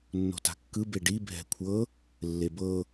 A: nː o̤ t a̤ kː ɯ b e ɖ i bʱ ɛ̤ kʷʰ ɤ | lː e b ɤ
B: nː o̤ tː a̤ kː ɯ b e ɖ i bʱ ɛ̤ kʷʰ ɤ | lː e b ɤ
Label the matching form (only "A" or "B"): A